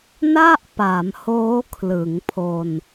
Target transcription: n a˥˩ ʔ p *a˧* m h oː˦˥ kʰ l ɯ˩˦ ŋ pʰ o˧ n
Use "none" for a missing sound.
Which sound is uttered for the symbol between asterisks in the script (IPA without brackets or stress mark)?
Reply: a˩˦